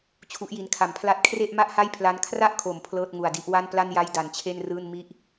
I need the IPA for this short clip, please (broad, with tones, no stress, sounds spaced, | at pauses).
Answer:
t͡ɕʰ u˦˥ ʔ j i˧ n kʰ a˨˩ m pʰ l a˥˩ t̚ kʰ r e˥˩ ʔ m a˥˩ ʔ h a˥˩ j pʰ l a˦˥ n kʰ r a˥˩ ʔ kʰ o˩˦ m pʰ l ɤː˥˩ t̚ ŋ u˨˩ a̯ d i˦˥ ʔ w a˥˩ n p l a˥˩ n j a˥˩ j d a˩˦ n t͡ɕʰ e˥˩ n r ɯː˥˩ n m i˥˩ ʔ